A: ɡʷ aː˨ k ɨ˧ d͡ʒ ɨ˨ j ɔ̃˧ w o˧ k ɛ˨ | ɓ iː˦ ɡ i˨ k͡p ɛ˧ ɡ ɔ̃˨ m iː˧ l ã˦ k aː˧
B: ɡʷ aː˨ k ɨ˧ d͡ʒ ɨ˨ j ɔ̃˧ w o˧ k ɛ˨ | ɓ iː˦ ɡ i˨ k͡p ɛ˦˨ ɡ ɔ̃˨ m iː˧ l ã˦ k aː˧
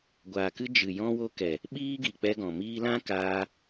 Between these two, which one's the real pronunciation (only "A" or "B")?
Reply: A